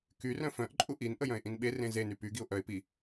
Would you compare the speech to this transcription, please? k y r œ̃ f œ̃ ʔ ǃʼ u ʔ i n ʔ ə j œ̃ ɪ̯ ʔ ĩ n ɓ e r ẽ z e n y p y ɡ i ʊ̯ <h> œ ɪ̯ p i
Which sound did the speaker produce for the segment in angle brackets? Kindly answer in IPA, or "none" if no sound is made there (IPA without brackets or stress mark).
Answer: ʔ